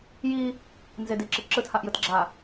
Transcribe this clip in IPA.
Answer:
ji | nzediǁɪ ǁɯthaʔjɯtɡ͡ǁa

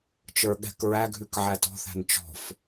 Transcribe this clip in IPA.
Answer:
t͡ʃə˞ɠɛ̤k ɹæɡʱʉk ʕætɔ̤θæ̤n t͡ʃɔ̤f

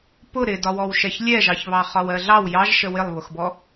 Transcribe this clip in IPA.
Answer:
pʊ ɾɪdɒwɔwʃɛç lʲɛʒɑçβɑ χɒwɜɮɑw jɑʒʃə wɪlˠβʊxbɔ

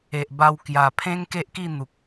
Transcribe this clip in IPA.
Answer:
e˨ʔba˧w kja˨˩pʰẽ˦ŋ ke˦ʔki˥˧n̪u˨k̚

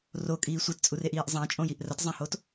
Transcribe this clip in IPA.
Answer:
rokʼiː sʷitt͡sʼureʔiːʔ zˤãt͡ʃʼõjiʔ rɐtzˤãhot

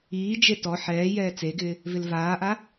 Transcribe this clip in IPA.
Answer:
iːd͡ʒe tɔ ħɛːjɛː t͡seɡɪː | vɪlvaːʔa

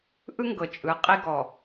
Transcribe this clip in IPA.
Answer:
ʔɯ˦ ŋɡɤ˨t͡ʃʼɯ˨ qʼi˦ɡɔ˨

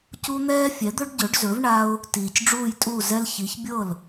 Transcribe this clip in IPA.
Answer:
cu˦n̪ɛː˦ fʲɛ˩˥d̪ɵ˦ɖɟɵ˩˥ɖzɵ˩˥v ɳa˦ʊ̯ | tiː˨˩cɖ͡ʐuː˥˩jtʼuː˥˩ zɛ˦l çi˩˥çbʲɤ˥˩l

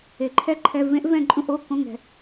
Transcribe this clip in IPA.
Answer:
e˨ǃʰɛ˦˥ ǃʰɛ˧˥˧ vẽ˦˥ʔ vɛ̃˥˧ǃʼũ˥˧ʔ o˧˥˧kõ˧˥˧ ŋɛ̤˨

